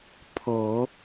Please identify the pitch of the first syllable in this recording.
low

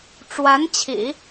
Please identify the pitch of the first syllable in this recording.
rising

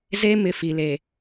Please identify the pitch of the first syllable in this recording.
high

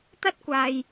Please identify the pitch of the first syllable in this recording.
high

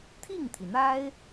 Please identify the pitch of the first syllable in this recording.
falling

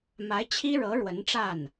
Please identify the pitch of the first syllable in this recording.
rising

